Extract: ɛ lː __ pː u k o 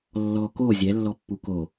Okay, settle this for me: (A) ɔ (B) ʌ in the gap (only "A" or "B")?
A